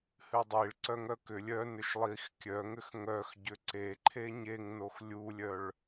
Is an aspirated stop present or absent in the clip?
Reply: present